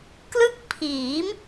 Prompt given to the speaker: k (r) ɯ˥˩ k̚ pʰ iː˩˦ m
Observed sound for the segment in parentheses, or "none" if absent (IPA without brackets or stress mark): l